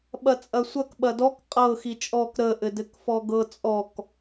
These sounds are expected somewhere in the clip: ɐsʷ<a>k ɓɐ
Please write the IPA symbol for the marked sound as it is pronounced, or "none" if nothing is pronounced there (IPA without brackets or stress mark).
ɐ